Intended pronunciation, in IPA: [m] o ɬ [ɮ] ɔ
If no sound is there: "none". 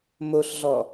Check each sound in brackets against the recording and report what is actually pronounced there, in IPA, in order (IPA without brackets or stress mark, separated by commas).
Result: m, ɮ